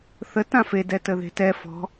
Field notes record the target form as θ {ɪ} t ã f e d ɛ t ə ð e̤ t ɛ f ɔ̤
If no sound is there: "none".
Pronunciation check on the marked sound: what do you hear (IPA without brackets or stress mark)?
ə